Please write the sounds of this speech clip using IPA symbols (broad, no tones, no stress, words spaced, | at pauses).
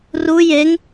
ru jeŋ